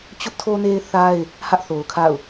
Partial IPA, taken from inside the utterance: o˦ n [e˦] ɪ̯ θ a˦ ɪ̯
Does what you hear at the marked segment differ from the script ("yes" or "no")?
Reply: no